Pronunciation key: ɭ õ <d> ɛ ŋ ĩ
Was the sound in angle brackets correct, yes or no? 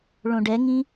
no